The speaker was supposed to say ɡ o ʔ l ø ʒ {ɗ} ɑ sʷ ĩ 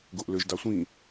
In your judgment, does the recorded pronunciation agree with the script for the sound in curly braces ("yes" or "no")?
no